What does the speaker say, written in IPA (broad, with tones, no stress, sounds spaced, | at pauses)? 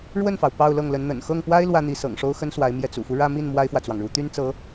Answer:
ɻ w ə˥˩ n f ɑ˩ ʊ̯ p ɑ˥˧ ʊ̯ l ɤ˥˩ ŋ l ə˧˥ n n̪ ə̰˨˩ n x ɤ˥˩ ŋ p w a˥ ɪ̯ l w ä˥ n̪ i˧˥ s ɤ̰˨˩ ŋ ʂ o˥ ʊ̯ x ə˥ n s w a˧˥ ɪ̯ m j ɛ˥˩ t͡s ṵ˨˩ f u˦ ɻ ä˥˧ m i˥˩ n m w a˥ ɪ̯ f w ä˨ t͡s w ɑ˩ ŋ ɻ u˧˥ t̪ y˥ n t͡s ɤ˧˥